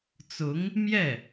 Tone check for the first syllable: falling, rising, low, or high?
rising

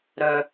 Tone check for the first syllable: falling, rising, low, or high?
high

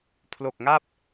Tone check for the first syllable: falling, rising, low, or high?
low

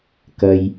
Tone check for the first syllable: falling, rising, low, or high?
low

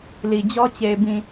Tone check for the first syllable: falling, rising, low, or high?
low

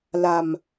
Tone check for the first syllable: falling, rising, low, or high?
low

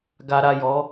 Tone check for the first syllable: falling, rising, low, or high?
low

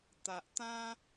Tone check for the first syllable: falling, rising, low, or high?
low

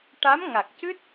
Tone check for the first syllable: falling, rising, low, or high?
rising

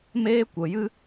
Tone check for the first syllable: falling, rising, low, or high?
high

